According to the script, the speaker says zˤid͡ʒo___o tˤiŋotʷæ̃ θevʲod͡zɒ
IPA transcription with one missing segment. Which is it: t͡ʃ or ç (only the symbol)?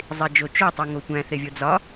t͡ʃ